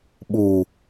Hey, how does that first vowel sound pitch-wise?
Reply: low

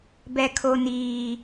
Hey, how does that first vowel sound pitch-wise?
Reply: high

